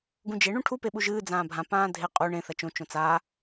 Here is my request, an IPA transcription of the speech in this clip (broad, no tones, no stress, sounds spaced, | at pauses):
ɡ ũ d͡ʒ e ɳ ũ ʈʰ u p e ɓ u ʒ ɨː d͡z ãː bʱ ã p ãː dʱ e qʼ u ɳ ẽ θ ɐ t͡ʃ õ t͡ʃ õ t͡s a